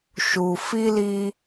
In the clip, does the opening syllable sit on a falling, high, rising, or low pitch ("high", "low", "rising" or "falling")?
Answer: low